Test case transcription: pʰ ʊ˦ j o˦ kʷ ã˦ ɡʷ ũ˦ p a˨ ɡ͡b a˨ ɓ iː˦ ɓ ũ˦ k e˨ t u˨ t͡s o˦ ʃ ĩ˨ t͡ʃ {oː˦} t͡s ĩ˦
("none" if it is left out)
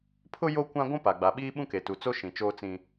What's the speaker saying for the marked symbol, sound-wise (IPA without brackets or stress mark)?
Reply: oː˦